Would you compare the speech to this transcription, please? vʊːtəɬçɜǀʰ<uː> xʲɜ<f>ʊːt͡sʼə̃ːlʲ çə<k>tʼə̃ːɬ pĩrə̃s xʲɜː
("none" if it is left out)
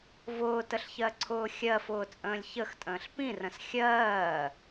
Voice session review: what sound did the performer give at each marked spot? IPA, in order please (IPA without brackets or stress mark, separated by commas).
ʊː, f, x